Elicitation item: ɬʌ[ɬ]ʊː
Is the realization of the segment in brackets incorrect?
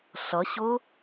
yes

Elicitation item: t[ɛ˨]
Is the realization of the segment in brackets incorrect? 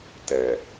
no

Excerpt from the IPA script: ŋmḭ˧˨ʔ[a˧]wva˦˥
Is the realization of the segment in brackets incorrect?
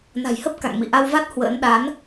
no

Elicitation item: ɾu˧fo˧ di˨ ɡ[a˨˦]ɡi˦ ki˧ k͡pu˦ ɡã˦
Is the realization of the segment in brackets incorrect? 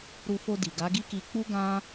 no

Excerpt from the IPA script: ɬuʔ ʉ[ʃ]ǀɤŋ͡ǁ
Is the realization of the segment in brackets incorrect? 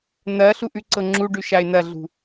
yes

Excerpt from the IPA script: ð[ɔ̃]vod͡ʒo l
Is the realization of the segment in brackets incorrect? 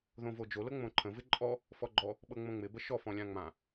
yes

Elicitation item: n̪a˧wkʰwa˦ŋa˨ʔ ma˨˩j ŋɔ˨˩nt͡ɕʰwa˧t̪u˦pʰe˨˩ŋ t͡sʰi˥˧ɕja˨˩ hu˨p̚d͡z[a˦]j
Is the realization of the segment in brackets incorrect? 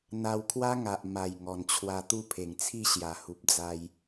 yes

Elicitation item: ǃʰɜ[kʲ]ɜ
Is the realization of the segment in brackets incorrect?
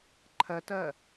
yes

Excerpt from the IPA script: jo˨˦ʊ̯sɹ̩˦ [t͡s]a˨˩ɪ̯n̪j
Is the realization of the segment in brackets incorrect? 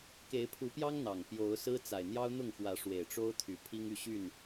no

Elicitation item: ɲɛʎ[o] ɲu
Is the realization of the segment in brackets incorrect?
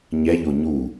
no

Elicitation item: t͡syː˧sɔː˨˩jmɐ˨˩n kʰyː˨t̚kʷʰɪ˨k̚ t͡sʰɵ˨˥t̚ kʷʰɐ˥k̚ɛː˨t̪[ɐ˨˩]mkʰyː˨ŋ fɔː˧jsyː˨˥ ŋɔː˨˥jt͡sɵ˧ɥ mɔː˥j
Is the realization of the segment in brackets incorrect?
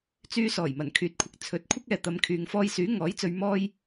yes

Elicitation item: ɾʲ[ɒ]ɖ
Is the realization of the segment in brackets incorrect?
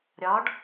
no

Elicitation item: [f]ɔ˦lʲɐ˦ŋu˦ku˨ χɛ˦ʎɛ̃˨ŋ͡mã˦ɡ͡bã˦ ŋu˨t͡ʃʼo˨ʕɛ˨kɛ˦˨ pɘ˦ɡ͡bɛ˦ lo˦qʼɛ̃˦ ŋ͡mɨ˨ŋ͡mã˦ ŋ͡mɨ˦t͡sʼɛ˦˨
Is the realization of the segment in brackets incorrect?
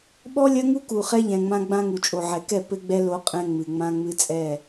yes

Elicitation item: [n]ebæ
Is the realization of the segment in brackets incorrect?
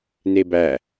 no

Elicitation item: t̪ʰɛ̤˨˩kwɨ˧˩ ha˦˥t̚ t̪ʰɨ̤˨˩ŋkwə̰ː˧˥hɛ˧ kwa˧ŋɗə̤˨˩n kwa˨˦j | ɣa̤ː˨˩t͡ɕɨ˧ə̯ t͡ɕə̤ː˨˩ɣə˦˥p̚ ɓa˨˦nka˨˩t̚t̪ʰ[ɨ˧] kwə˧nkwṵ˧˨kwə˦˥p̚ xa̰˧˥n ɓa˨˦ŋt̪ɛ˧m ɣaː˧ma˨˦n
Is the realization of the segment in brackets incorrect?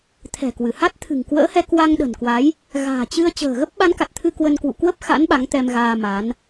no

